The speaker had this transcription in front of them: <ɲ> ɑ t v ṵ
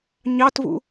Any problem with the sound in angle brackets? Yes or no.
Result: no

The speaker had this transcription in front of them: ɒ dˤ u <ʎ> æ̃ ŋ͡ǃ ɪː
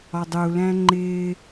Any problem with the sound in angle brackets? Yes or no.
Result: yes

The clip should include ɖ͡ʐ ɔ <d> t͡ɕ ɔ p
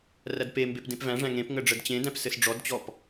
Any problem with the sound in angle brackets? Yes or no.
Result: no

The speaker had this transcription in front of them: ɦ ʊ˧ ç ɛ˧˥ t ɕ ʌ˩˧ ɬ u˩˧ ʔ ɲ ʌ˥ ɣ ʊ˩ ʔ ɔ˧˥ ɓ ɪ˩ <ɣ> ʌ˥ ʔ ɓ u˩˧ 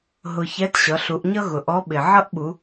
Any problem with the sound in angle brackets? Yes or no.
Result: yes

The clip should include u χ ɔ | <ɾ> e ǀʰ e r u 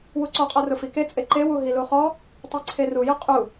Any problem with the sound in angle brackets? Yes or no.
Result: yes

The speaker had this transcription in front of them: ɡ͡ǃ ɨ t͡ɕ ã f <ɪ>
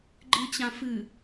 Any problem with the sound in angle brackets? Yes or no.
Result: yes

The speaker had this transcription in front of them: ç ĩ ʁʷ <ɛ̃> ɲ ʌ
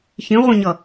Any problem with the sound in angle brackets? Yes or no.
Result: yes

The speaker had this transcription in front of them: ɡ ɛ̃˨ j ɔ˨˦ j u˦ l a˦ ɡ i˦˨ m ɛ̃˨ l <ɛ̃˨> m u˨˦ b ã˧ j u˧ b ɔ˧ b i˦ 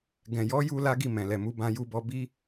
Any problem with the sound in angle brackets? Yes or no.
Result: yes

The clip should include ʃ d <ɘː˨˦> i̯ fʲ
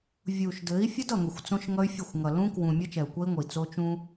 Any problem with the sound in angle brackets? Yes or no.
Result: yes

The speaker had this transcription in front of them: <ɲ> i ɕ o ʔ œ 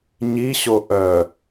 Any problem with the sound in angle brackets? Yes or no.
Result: no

